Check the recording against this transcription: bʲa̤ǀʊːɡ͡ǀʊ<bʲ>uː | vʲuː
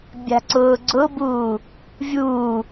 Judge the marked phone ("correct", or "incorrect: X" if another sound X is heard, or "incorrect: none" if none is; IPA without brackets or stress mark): incorrect: b